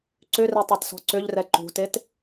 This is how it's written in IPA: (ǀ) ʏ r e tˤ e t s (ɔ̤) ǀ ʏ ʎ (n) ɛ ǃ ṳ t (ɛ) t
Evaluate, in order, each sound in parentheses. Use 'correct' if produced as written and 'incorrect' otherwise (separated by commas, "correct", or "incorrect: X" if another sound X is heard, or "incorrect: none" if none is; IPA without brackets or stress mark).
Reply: correct, correct, incorrect: r, incorrect: e